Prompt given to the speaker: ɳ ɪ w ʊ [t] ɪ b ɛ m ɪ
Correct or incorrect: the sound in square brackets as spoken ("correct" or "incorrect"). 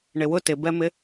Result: correct